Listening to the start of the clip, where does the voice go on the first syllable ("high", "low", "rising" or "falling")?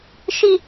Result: low